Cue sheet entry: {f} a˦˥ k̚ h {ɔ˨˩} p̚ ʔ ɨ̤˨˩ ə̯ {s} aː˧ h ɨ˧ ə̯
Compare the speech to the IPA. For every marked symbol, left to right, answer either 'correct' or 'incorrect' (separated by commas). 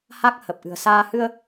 incorrect, incorrect, correct